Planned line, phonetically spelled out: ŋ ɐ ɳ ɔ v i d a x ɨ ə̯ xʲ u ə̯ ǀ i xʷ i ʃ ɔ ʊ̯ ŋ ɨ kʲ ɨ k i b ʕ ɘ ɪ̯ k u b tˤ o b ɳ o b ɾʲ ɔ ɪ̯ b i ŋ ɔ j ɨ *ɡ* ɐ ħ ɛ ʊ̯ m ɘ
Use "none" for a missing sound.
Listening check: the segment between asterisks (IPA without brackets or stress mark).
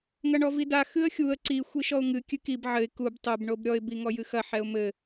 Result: x